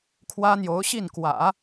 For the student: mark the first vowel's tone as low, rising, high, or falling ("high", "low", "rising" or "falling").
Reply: high